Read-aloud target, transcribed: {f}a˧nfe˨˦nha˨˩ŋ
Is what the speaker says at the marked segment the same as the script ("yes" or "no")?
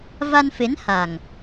no